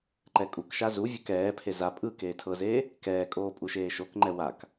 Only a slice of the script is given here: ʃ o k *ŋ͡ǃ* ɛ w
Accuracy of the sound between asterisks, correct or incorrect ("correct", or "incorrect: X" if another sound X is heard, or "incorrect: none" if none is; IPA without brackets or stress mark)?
correct